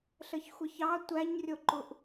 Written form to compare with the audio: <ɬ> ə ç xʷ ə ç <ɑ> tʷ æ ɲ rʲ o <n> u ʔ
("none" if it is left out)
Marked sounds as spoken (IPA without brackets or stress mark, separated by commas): ɬ, ɑ, ǃ